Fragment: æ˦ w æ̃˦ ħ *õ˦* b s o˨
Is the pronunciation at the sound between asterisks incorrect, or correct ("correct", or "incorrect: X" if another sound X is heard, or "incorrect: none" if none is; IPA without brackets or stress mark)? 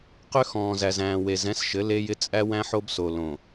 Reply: incorrect: o˦